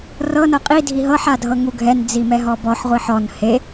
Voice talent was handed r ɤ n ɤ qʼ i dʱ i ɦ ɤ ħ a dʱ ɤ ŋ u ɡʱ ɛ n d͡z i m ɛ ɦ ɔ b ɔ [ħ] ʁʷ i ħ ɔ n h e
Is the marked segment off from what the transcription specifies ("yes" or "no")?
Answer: no